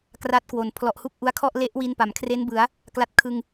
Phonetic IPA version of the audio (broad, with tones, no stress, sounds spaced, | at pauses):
k r a˦˥ t̚ k w o˨˩ n pʰ l ɔ˨˩ ʔ h u˥˩ k̚ ʔ u˧ a̯ kʰ ɔ˥˩ ʔ l e˦˥ ʔ w i˧ n p a˩˦ m kʰ r e˦˥ n b ɯ˩˦ a̯ | k l a˦˥ t̚ kʰ ɯ˧ ŋ